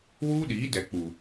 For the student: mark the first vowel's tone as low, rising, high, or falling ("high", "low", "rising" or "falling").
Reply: high